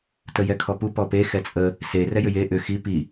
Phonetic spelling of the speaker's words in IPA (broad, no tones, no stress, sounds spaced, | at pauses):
t ə j ɛ kʰ ɔ p u p ɔ p e x ɛ t͡sʼ ə | s e r ɛ j ʏ j e ʔ ʏ x i p i